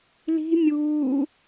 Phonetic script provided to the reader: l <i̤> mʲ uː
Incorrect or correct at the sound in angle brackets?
correct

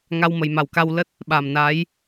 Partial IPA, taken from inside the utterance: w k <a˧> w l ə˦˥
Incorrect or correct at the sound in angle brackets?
correct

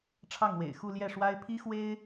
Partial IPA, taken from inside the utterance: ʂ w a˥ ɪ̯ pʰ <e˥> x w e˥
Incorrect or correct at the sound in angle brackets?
incorrect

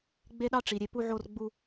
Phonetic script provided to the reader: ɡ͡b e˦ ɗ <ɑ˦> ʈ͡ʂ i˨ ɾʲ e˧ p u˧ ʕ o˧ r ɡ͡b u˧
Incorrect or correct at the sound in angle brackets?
correct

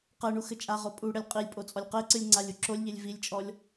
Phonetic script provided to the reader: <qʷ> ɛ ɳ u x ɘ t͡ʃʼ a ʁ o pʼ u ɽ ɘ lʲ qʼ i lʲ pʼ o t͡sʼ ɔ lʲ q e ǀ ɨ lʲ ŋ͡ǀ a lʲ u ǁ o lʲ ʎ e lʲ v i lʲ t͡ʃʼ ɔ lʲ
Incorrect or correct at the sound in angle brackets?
incorrect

